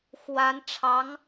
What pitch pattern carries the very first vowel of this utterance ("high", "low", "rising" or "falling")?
rising